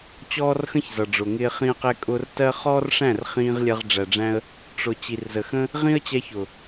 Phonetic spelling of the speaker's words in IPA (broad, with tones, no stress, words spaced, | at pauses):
t͡ɕɔː˦rxə̃˦ç zʌ˨ɖ͡ʐʊ˨ŋɪː˧ χĩ˧ə̯qɛ˧kʼʊ˧r tɜ˦ χɔː˦rʂæ̃˦˨r χĩː˧ʁ lʲɜ˧ʁ ɖ͡ʐæ˨ɖ͡ʐæ̃˧ə̯ | ʈ͡ʂʊ˨ t͡ɕi˨rzə˨xə̃˦ | ʁĩ˦ə̯t͡ɕɛ˧çʊ˨